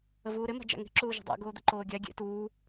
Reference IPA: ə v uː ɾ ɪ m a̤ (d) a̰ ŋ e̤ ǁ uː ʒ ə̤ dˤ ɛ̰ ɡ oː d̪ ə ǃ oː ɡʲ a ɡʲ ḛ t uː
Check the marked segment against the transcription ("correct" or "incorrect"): incorrect